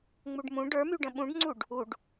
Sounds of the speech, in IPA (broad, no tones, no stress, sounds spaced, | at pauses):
ŋ͡m u ɖ m ũ ɖ ə˞ m y ɖ ə̃ ɓ ũ ɖ ŋ͡ǀ u ɖ | u ɖ